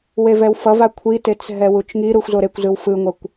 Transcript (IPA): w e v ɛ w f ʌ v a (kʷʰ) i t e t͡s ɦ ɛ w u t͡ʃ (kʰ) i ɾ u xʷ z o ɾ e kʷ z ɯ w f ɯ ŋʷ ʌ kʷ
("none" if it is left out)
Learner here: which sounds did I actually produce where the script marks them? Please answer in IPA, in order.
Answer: kʷʰ, ŋ

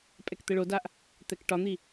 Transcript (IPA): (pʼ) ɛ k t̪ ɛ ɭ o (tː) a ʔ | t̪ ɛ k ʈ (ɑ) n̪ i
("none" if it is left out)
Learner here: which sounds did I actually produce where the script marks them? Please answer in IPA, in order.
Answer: pʼ, d, ɒ

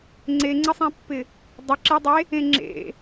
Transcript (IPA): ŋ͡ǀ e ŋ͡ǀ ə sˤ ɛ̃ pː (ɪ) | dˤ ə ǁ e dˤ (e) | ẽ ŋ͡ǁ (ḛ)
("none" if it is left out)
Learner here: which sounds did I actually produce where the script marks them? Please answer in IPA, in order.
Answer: ɪ, e, ḛ

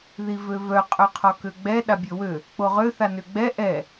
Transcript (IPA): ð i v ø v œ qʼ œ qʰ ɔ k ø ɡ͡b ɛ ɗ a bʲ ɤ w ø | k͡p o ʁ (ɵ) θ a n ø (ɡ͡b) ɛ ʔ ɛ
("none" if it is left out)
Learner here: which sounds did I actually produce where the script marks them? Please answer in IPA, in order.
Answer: ø, ɡ͡b

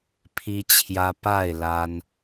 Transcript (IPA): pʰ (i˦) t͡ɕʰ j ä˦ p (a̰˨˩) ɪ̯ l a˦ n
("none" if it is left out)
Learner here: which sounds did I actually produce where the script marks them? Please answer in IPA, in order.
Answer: i˦, a˥˨

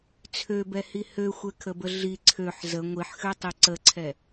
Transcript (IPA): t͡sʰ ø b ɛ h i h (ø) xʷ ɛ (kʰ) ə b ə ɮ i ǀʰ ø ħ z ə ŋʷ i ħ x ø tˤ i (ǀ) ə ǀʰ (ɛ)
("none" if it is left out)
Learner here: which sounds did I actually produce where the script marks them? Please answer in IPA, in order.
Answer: ø, kʰ, ǀ, ɛ

